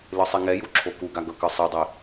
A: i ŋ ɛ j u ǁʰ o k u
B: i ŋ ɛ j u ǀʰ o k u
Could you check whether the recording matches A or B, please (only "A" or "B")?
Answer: A